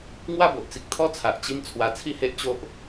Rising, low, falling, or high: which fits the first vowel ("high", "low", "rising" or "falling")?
falling